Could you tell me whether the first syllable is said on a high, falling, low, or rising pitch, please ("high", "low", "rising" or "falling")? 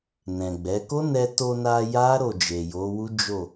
low